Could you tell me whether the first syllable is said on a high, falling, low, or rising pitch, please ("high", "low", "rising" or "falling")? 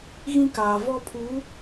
high